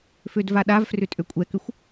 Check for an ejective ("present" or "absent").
present